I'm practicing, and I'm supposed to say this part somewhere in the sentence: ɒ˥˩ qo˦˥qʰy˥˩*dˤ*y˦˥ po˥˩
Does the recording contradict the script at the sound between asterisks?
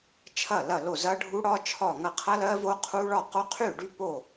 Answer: yes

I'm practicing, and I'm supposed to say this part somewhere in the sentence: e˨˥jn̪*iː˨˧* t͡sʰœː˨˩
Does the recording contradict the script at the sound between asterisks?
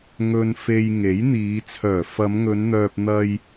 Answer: no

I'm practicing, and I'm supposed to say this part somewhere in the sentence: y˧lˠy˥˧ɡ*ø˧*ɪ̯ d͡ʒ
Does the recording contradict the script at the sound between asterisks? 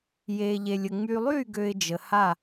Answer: no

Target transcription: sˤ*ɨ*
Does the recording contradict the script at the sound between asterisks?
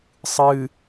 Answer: no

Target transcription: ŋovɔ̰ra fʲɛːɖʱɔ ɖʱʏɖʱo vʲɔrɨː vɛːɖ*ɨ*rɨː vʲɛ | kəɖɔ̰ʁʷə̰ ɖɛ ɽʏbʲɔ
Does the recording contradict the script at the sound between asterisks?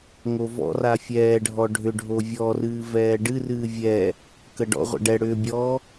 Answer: no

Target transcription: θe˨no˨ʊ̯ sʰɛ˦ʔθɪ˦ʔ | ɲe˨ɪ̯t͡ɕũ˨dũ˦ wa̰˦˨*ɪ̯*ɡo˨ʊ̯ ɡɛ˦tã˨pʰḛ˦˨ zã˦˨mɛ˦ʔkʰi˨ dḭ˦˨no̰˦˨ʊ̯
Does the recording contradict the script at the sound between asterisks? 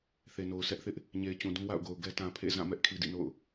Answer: yes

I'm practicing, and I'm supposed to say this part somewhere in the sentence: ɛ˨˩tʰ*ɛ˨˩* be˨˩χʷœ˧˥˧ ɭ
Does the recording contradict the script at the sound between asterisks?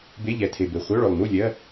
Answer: yes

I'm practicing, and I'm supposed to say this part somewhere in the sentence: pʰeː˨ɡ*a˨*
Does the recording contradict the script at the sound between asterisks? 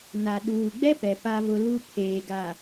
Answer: no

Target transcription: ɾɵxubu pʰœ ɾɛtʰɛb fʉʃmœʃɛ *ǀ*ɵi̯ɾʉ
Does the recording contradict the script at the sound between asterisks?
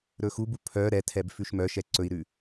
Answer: no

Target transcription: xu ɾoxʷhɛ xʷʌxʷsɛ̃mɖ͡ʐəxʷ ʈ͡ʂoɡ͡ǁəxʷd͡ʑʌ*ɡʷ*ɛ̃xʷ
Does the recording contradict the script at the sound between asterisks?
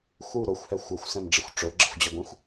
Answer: no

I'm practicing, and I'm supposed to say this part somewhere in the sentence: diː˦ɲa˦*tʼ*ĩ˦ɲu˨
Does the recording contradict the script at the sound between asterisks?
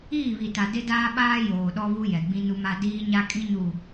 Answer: yes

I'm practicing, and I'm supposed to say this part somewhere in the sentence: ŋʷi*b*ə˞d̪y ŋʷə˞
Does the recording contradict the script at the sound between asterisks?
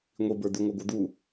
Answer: no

